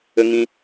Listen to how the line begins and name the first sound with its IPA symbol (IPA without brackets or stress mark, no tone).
ə